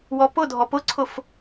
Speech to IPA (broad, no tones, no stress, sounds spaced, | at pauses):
w ɔ p ʊ dʱ ɔ p ʊ ǀʰ ʊ f